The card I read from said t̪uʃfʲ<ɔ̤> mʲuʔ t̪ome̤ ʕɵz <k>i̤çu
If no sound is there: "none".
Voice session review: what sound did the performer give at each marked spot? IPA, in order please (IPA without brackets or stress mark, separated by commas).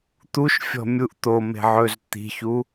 ɔ̤, t̪